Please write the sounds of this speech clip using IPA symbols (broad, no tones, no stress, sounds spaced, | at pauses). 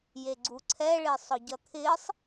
j e ɡ͡ǀ u ǀʰ ɛ ɭ ɪː sˤ ɔ ɟ ʌ t̪ʰ ɪː sˤ